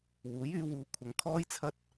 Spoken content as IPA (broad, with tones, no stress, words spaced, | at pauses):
wuː˨˥jyː˨˧wuː˨˧ kʷʰɐ˨ŋkʰɔː˥jt͡sʰɐ˥t̚